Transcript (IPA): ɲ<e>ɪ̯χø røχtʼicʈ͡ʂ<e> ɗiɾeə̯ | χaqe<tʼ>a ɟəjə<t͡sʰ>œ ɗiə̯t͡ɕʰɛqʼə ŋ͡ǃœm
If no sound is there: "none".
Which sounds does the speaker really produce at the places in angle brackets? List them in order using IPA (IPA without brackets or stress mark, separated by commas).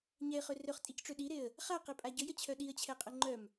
ɛ, ø, pʼ, t͡ɕʰ